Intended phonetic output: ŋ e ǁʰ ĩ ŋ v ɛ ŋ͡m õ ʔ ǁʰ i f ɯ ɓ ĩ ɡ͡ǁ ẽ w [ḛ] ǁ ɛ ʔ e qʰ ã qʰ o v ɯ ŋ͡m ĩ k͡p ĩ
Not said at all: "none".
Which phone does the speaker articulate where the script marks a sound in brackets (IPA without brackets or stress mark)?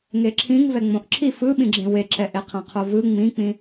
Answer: e